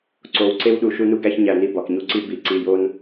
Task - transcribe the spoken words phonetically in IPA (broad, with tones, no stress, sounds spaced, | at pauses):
ǀ o˨ w ǀ e˦ w ɗ u˨ ʃ u˦ n u˦ ɡ æ˦ ç ɲ æ˨ n i˨ b ɒ˨ k ɲ u˦ ǀ i˦ b i˨ ǀ i˨ j o˦ n